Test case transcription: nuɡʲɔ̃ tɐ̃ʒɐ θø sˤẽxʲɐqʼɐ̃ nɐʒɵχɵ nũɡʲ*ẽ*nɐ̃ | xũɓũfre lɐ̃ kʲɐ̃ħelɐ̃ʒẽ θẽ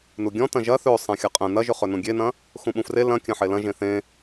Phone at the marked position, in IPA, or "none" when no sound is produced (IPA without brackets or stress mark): e